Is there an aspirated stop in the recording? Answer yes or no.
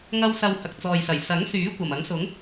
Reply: no